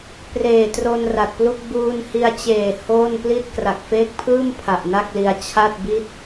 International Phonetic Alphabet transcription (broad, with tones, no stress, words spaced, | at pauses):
preː˨˩tro˧n ra˨˩t̚plu˥˩k̚ buː˧nhi˧a̯t͡ɕeː˨˩ hoː˥˩n pli˥˩t̚ kra˨˩k̚feː˦˥k̚pʰɯː˥˩m pʰa˨˩ʔna˥˩k̚li˧a̯ t͡ɕʰa˥˩t̚bi˥˩t̚